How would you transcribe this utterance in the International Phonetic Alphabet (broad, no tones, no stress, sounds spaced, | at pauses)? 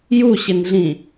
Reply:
j u ɕ ɪ n ɮ ĩ